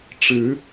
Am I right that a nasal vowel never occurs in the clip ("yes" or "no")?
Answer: yes